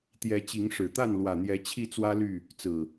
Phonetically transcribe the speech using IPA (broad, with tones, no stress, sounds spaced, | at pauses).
t̪ j ɛ˨˦ t͡ɕ i˨˦ ŋ ʂ ɻ̩˨˩ t̪ a˥˨ n l w ä˨˩ n̪ j ɛ˨˦ t͡ɕʰ i˥˨ t͡s w ä˦ l y˥˨ | t͡s ɹ̩˨˩